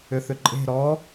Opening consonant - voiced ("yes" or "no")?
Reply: no